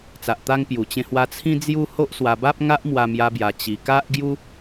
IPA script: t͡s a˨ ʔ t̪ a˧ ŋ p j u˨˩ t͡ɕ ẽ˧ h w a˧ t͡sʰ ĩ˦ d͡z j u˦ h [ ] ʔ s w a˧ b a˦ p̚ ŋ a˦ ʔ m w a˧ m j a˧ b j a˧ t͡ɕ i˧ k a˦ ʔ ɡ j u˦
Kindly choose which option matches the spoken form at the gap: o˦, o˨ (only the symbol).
o˦